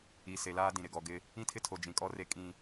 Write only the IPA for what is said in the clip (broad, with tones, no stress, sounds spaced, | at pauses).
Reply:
i˨ s e˨ l aː˦ d ĩ˨ ɾ ɪ˨ ɡ ɔ˨ ɡ ɪ˦ | ĩ˦ tʰ ɪ˦ tʰ o˨ d͡ʒ ĩ˨ kʼ ɔ˦ r e˦ kʼ ĩ˦